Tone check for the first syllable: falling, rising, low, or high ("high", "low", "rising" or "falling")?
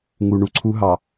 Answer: low